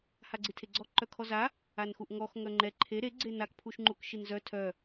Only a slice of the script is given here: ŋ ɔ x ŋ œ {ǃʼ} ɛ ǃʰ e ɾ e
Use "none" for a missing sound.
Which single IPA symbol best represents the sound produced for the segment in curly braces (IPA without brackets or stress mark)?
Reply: ŋ͡ǃ